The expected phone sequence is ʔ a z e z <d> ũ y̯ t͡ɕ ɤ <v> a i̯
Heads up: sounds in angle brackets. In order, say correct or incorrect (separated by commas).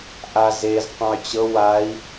incorrect, incorrect